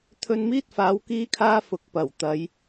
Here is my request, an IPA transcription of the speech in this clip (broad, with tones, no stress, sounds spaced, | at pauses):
t̪ʰ ɵ˧ n m iː˥ t̚ f aː˨˧ w k iː˥ kʰ aː˥ f ʊ˨˥ k̚ p ɐ˨˩ w t̪ ɐ˨˧ j